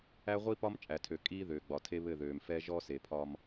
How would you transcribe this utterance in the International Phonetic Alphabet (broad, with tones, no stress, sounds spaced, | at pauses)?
æ˦ ʁʷ i˦ p ɒ˦ m t͡ʃʼ æ˨ tʰ ø˨ kʼ iː˦ ð øː˨ ɡ͡b ɒ˨ tʰ e˦ β ɘ˦˨ ð øː˨ m f ɛ˦ ʒ ɔ˦ s e˨ pʰ ɒ˦ m